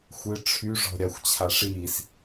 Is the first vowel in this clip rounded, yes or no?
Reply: no